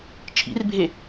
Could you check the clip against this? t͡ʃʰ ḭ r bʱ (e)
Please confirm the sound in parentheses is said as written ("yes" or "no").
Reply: yes